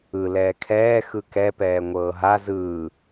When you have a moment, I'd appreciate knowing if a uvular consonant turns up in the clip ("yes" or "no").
no